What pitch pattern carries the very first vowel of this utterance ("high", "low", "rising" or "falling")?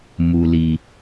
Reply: low